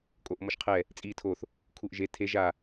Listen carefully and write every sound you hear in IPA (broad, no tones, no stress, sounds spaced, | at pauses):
kʼ o ʔ m ɔ ʃ qʰ ɛ | t͡sʼ iː tʰ o θ | kʰ u ʔ ʒ e tʰ e ʒ a